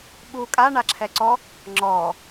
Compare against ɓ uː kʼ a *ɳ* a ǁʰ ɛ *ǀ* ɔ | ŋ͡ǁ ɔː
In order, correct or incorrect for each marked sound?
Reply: correct, correct

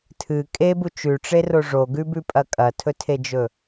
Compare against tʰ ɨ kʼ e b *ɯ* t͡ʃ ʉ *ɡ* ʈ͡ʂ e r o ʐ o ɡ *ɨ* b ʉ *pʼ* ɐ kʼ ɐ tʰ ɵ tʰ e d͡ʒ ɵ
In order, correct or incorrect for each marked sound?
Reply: incorrect: u, incorrect: none, incorrect: ʉ, correct

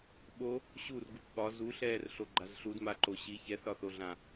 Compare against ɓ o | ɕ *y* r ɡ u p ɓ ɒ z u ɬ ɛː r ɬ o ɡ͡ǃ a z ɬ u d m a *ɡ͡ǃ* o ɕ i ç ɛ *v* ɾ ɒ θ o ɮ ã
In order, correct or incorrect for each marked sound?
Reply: incorrect: u, incorrect: ǃ, incorrect: θ

